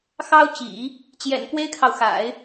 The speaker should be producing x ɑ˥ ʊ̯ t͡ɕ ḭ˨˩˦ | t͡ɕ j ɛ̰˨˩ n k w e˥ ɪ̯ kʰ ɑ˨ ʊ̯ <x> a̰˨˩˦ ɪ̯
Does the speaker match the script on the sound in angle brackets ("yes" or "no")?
yes